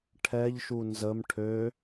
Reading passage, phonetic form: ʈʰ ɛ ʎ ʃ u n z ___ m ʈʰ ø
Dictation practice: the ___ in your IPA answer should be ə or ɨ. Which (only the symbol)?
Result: ə